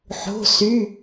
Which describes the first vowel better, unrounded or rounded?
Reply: rounded